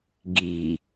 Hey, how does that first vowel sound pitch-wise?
low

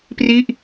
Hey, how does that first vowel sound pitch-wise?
falling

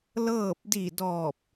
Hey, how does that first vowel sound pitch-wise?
falling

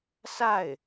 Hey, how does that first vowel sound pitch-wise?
falling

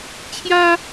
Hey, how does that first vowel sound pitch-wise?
high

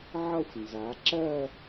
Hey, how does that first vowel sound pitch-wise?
falling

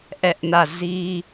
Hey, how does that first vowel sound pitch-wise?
high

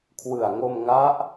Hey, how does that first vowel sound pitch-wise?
low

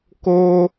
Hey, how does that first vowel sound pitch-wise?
high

